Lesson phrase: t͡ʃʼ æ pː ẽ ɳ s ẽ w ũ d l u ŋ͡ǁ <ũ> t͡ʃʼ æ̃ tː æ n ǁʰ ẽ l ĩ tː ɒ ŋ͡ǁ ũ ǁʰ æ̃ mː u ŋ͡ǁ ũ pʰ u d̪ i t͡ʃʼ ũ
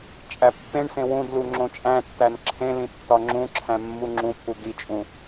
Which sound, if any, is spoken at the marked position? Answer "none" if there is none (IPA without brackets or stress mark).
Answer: õ